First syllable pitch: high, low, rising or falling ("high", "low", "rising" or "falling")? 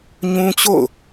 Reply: high